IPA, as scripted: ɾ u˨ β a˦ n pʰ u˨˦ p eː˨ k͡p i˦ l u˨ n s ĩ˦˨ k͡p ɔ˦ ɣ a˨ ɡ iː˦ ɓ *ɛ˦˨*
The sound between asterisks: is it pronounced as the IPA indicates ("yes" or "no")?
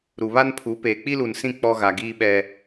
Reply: no